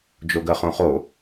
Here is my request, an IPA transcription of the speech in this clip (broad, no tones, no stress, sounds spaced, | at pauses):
d͡ʒ o ɡ ɜ χ õ χ o